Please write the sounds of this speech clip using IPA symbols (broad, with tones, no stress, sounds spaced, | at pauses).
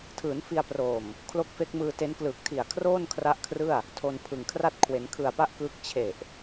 tʰ ɯː˩˦ n f i˧ a̯ p r oː˨˩ m | kʰ l o˦˥ k̚ f e˦˥ k̚ m ɯː˧ t e˦˥ n k l ɯː˨˩ k̚ tʰ i˨˩ a̯ kʰ r oː˥˩ n kʰ r a˦˥ ʔ kʰ r ɯ˥˩ a̯ | tʰ o˧ n pʰ ɯ˨˩ ŋ kʰ r a˥˩ t̚ kʰ w e˩˦ n kʰ ɯ˨˩ a̯ p a˥˩ ʔ k ɯː˦˥ k̚ t͡ɕʰ e˨˩ ʔ